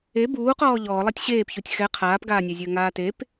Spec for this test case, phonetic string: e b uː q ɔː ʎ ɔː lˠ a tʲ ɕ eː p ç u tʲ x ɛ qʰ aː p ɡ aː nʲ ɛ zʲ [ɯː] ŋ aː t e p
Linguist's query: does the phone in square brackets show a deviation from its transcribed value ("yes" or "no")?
yes